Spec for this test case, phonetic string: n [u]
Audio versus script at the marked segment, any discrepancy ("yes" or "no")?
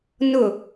yes